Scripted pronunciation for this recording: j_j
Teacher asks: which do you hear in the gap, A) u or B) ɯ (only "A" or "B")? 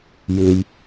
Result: B